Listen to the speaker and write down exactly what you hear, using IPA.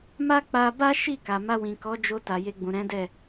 m a˦ k͡p a˧ b a˦ ʃ i˦˨ k a˨ m a˧ w ĩ˨ k ɔ˨˦ d͡ʒ o˧ t a˨ j e˧ ɡ͡b ũ˨ ɾ ɛ̃˨˦ d ɛ˦˨

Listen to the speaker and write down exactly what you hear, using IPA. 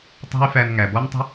tˤ ɛ̤˥ y̯ f æ˧ n ŋ æ˩ b ɔ˥ n tˤ ə̤˥

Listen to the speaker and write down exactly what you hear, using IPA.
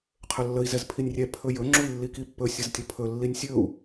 qʰ ɵ lː ə i̯ z ɛ z pʰ i nʲ rʲ ɛ pʰ ɵ j ɵ ŋ͡ǁ u i̯ lː i k i pː ɵ sʲ ə z tʲ ə pʰ ɵ lː i nʲ sʲ ɵ u̯

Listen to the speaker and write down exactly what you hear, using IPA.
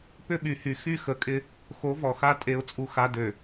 p ʏ˦ ɓ y˨ h y˨ x y˦˨ x ə˨˦ kʼ ɪ˦ | x o˨˦ v ɔ˨ x a˦ tʼ e˦ ʊ̯ t͡sʼ u˦ x a˦ d ø˨

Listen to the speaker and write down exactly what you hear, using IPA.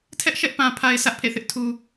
tʰ ɛ˦ ʔ ʃ ɛ˦ ʔ p ã˨ pʰ a˨ ɪ̯ sʰ ä˦ ʔ pʰ ḛ˦˨ θ ɪ˦ ʔ tʰ u˨

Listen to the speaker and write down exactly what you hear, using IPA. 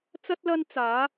t͡s ɐ˥ t̚ l ɐ˥ n t͡s aː˨˥

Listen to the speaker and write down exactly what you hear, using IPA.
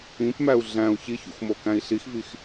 ĩ p m æ u̯ ɮ æ̃ u̯ ç i ç ṵ x m o k æ̃ i̯ ɬ i x v i x

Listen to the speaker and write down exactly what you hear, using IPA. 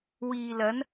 w iː˨ l ɐ˨˥ n

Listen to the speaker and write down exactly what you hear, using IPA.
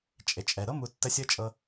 t͡ʃʼ e˩ t͡ʃʼ ɛ˩ ɾ ɤ˥ m u˨ tː ə˦ sʲ ɤ˥ t͡ʃʼ ɤ˦

